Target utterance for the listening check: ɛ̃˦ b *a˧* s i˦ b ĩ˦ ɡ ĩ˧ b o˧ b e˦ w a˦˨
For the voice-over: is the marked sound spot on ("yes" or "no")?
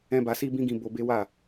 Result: yes